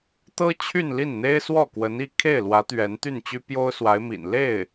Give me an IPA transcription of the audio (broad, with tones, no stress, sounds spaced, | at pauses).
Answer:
t̪ ɤ˥ t͡ɕʰ y˥˧ n l i˥˩ n n̪ e˥ ɪ̯ s w ɔ˥˩ k w ə˧˥ n i˥˧ kʰ e˥˩ ɪ̯ l w ä˧˥ t̪ ɥ ɛ˧˥ n t̪ y˥˩ n t͡ɕ y˥ p j o˥ ʊ̯ s w a˧˥ ɪ̯ m ḭ˨˩ n l e˥˩ ɪ̯